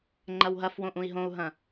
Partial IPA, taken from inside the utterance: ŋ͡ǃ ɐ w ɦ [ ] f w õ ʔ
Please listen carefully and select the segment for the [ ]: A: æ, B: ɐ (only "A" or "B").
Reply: B